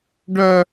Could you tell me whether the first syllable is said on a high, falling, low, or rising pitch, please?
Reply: high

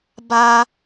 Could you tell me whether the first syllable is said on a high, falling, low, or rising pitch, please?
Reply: high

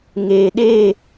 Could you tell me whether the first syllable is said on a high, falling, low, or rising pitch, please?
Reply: low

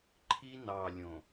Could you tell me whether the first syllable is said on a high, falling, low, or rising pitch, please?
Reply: high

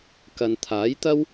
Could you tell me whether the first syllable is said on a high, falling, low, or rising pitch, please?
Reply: low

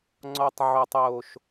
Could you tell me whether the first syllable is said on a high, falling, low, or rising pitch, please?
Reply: high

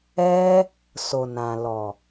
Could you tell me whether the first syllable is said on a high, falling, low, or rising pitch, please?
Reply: high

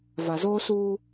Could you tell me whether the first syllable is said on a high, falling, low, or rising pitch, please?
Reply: low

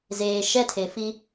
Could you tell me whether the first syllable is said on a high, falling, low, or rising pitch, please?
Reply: low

